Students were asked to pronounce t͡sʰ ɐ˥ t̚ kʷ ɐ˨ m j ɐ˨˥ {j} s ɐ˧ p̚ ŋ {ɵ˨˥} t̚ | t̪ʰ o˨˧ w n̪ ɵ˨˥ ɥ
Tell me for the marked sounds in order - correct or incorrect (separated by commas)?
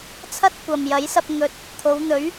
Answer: correct, correct